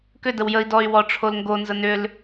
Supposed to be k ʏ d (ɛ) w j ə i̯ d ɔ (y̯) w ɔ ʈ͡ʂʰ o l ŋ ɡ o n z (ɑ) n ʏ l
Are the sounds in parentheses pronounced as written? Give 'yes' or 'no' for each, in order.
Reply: no, yes, no

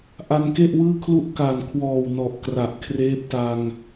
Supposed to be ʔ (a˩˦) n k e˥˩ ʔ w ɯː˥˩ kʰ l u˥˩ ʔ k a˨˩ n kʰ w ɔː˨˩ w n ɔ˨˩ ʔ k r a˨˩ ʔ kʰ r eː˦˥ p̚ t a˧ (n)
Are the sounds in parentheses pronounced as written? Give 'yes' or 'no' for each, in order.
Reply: no, no

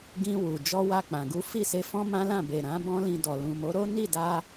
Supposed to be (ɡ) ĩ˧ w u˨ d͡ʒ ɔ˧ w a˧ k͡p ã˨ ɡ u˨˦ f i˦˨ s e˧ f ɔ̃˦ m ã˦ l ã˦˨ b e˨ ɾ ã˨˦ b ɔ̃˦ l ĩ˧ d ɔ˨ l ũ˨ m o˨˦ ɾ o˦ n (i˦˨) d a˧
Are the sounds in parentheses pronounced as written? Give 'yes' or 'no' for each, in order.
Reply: yes, yes

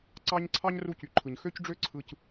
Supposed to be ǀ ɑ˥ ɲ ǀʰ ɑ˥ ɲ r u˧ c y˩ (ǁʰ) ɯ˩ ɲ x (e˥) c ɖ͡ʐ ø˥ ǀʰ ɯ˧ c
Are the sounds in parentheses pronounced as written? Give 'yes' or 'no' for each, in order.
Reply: no, no

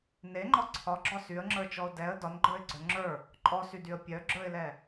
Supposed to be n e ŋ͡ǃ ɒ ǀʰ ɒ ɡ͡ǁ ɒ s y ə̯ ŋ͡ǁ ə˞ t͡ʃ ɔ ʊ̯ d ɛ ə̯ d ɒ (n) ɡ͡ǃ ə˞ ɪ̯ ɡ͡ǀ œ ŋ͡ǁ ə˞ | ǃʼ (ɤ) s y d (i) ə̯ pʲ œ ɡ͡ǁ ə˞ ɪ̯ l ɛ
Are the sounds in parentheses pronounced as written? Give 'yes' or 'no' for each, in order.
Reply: yes, no, no

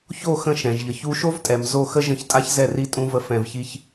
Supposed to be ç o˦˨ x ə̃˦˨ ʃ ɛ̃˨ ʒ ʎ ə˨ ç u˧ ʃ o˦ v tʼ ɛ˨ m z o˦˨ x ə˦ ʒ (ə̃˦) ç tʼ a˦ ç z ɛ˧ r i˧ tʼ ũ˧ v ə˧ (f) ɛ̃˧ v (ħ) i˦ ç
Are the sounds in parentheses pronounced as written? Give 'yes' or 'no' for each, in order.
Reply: no, yes, no

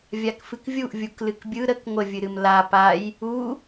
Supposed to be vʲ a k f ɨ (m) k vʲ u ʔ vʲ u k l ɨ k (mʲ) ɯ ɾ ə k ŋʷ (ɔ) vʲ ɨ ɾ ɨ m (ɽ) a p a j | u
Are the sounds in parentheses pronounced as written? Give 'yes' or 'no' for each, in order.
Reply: no, no, no, no

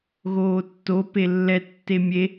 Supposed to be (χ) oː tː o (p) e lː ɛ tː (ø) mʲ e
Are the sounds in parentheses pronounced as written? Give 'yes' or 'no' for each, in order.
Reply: no, yes, no

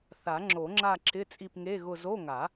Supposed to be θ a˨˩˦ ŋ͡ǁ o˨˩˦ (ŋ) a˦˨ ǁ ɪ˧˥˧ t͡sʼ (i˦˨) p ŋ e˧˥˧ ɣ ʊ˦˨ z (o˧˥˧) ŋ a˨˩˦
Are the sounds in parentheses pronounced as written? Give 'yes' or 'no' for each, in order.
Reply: no, yes, yes

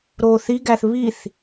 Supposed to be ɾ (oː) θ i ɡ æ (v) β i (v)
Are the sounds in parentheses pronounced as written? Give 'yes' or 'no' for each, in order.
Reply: yes, no, no

